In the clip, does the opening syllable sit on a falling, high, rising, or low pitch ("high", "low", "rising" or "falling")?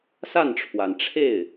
falling